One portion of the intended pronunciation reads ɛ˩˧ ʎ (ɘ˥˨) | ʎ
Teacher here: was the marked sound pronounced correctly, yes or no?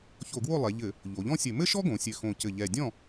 no